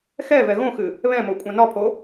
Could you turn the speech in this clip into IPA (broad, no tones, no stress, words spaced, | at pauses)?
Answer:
xɛ vɛɣõxɨ | βɛ̃mo kʷʼãnɒpʰo